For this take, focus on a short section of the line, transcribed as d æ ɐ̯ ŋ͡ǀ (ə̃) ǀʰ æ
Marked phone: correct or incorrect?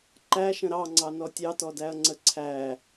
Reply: incorrect